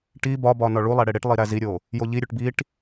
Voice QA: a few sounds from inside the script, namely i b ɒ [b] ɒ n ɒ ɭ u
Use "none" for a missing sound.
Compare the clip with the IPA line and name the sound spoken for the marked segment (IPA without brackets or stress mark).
b